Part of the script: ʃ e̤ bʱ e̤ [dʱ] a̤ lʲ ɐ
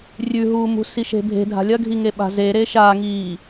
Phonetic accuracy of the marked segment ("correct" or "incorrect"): correct